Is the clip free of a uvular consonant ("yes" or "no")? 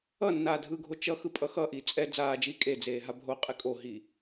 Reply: no